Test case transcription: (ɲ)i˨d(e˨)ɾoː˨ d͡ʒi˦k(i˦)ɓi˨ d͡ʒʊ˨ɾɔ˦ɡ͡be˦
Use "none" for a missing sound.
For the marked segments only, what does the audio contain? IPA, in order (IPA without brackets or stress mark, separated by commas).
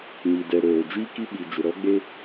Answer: ɲ, ɛ˨, i˦